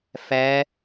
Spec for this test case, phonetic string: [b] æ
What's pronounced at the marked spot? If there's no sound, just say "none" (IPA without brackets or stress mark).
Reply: f